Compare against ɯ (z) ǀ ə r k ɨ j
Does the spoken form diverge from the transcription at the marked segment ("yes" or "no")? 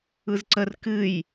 no